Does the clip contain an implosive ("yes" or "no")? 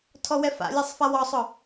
no